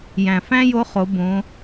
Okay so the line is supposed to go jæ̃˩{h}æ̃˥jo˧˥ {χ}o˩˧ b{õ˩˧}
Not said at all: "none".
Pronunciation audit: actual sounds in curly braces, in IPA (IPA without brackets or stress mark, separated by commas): f, χ, õ˩˧